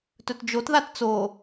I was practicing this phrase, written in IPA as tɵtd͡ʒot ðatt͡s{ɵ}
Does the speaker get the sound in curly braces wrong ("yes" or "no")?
yes